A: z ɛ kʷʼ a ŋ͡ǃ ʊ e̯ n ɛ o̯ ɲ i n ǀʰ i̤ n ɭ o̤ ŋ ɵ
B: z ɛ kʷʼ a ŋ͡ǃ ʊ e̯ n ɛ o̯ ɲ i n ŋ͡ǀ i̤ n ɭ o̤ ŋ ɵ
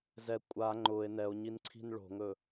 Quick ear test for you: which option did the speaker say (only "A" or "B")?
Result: A